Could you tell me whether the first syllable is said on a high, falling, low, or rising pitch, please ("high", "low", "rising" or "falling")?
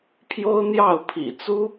high